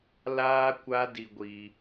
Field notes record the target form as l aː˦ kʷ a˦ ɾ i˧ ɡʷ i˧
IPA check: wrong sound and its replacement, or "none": ɾ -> d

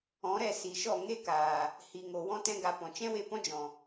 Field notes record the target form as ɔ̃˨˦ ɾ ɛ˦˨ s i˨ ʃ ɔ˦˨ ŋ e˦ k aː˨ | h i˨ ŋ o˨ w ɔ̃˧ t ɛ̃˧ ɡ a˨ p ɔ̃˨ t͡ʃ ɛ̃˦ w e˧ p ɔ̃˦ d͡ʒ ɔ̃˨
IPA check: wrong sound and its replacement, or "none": none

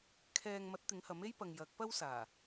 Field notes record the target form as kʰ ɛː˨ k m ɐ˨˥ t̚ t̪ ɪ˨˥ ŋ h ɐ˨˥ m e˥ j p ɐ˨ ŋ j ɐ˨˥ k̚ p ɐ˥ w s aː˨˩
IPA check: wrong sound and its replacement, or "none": k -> ŋ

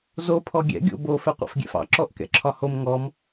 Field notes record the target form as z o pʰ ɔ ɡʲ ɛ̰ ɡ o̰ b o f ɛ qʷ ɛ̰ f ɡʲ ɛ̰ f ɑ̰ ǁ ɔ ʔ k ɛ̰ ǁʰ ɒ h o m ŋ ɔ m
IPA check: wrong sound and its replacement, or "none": ɡ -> ɡʲ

